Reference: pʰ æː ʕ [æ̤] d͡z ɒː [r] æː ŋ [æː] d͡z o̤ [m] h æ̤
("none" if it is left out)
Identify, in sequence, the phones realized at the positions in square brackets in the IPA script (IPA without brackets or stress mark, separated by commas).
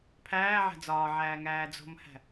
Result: æ̤, ʕ, æː, m